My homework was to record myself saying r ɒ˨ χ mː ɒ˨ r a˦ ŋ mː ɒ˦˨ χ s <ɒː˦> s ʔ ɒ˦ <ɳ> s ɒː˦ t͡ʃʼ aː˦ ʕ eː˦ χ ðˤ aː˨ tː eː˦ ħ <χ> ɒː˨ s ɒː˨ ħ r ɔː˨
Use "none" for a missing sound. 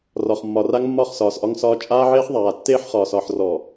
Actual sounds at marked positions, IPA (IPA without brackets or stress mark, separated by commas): ɒː˨, ŋ, χ